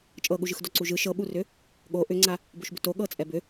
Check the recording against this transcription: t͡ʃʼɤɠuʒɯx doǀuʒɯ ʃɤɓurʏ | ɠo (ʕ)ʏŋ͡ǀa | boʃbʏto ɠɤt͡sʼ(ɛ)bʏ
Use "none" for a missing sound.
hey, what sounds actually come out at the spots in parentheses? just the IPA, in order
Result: ʔ, ɛ

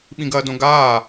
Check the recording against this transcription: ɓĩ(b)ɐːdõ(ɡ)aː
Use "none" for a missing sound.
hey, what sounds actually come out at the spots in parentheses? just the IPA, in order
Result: ɡ, ɡ

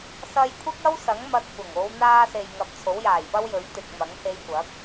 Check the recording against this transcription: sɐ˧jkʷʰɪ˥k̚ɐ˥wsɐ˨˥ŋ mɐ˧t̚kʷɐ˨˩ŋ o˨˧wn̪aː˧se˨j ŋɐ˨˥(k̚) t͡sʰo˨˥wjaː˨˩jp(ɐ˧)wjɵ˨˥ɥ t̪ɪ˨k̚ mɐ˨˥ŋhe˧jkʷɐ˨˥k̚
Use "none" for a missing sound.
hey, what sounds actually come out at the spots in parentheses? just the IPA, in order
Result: p̚, ɐ˥

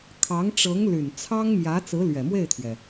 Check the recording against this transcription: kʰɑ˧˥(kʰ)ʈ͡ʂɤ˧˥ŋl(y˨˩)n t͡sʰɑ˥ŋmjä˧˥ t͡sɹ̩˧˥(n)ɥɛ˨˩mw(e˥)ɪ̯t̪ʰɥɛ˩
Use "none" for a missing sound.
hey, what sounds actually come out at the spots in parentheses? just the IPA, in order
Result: ŋ, y˨˩, l, e˥˩

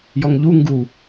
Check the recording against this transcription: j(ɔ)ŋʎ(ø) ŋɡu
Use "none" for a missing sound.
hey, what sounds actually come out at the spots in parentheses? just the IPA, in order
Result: ɔ, u

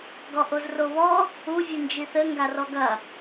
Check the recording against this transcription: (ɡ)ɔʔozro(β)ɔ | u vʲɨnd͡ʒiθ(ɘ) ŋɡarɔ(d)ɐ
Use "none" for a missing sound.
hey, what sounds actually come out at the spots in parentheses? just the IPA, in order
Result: ɡ, β, ɘ, ɡ

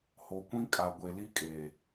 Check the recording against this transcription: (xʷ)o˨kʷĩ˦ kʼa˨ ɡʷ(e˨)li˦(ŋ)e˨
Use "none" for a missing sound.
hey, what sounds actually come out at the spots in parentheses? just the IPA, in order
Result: h, e˨, kʼ

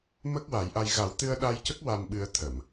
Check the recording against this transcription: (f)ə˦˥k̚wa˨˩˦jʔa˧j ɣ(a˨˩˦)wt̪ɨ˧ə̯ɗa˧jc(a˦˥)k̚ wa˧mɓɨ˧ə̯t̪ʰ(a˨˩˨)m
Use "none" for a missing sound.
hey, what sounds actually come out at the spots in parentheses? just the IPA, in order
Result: m, a˨˩˦, ə˦˥, ə˨˩˨

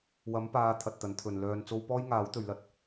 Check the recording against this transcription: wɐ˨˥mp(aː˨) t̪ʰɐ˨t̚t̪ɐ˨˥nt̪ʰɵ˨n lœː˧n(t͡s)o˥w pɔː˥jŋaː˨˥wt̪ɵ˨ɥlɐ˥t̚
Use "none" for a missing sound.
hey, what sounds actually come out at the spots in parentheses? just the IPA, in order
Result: aː˨˧, t͡s

